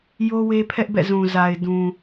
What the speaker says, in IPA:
jo˦we˦pʰɛ˦ʔbɛ̰˦˨ zũ˨ za˨ɪ̯dũ˨

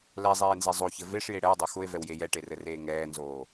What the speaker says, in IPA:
lɛzˤeːnze zˤoçɘ veʂje ɽɛwdˤo xʊe̯vɛwje jɛʈerɘreː ŋɛːnzoː

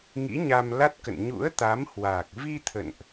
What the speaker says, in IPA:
ŋḭ˧˥ɲa˧mla˦˥t̚kə̰˧˨n ɲṵ˧˥ə̯t̪a˨˦mhwaː˨˩k̚ vi˧ t̪ʰə̰˧˨nʔ

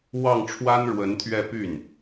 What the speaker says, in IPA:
wɑ˥˩ŋʈ͡ʂʰwa˥nɻwə˧˥nt̪ʰɥɛ˥˧ py˥˩n

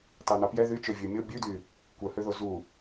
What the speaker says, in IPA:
tɑn̪ɑpjɛ ðyt͡ʃø vʲʉmʲo bʲʉdy | kʷœhøðo zu

